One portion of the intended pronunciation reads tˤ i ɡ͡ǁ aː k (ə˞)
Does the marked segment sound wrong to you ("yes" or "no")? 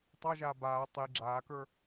no